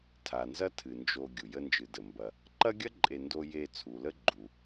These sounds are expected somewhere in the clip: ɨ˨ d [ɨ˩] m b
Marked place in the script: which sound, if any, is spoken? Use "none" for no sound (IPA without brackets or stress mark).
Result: ə˩